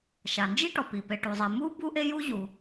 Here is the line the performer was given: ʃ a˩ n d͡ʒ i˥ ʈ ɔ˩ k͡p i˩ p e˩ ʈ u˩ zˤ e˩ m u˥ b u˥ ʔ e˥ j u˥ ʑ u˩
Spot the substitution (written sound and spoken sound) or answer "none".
k͡p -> p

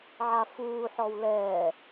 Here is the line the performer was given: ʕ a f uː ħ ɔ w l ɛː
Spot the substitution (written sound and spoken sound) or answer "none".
none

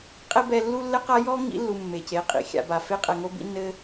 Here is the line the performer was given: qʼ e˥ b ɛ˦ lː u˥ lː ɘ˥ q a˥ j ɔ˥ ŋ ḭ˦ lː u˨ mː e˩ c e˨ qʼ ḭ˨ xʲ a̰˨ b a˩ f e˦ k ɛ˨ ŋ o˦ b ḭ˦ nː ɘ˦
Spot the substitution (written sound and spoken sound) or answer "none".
k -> qʼ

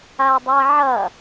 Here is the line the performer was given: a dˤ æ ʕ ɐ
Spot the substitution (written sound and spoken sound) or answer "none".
æ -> a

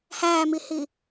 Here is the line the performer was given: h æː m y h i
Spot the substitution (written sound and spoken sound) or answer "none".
y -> i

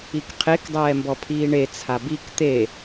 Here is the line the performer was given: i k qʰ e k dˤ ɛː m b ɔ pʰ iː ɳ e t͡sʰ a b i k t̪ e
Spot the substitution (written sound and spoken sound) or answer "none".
none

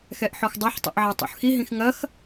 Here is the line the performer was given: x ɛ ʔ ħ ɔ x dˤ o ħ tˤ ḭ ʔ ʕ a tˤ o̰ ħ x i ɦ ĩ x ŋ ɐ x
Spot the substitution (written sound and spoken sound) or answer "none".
none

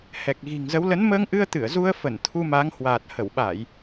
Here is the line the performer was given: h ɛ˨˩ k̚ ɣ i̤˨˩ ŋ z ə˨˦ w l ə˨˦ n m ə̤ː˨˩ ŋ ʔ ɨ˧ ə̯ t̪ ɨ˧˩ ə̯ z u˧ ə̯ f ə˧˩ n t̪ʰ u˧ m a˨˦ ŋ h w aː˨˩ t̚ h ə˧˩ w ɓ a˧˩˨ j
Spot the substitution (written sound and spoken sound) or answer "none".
ə̤ː˨˩ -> əː˧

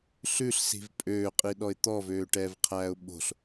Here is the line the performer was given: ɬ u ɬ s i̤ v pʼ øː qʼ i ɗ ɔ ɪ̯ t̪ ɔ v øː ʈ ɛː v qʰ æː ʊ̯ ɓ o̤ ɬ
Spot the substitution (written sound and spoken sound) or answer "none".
u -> ʉ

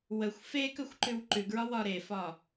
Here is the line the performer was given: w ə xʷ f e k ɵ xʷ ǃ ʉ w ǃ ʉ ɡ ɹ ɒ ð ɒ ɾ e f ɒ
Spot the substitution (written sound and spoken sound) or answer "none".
ð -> w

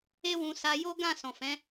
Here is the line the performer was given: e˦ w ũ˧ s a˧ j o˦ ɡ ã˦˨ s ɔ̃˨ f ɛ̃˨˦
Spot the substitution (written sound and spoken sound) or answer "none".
none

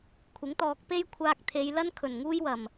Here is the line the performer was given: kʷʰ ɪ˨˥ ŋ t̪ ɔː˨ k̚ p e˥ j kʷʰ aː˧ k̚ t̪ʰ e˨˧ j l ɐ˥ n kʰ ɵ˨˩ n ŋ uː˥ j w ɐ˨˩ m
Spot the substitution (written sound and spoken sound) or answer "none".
none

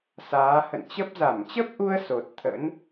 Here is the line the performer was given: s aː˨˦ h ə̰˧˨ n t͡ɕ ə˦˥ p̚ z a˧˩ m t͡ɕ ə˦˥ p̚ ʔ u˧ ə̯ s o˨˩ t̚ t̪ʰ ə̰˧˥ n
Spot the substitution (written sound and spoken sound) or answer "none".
none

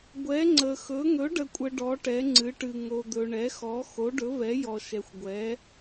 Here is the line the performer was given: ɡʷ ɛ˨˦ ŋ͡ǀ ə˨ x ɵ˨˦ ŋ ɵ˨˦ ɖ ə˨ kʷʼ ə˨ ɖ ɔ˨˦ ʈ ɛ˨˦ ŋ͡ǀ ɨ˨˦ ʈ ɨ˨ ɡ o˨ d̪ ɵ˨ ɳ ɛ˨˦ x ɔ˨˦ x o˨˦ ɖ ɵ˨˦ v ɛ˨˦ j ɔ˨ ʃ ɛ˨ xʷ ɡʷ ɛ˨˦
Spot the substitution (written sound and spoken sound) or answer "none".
ɡ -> ŋ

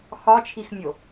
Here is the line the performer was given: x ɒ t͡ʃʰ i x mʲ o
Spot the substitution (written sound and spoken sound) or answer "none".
none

